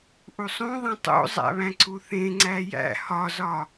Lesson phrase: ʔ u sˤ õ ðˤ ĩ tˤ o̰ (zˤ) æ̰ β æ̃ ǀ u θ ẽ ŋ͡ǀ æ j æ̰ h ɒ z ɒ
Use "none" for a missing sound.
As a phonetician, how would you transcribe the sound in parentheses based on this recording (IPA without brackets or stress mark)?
zˤ